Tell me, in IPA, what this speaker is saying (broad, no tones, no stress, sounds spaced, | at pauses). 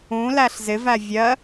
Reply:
ũ l æ ɬ z ɪ v æ vʲ ɜ